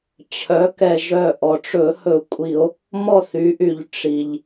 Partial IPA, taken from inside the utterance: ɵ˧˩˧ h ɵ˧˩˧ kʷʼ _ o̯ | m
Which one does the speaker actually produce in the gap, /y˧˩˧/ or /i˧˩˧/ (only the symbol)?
i˧˩˧